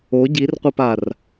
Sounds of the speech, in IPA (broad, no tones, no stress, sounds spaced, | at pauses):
o ɟ i r qʷ ɐ p a r